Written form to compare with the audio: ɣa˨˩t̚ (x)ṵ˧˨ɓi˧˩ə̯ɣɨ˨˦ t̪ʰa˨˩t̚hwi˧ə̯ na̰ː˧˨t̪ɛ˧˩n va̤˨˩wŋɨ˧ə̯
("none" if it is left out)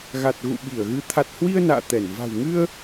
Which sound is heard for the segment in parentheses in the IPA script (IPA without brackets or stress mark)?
ɣ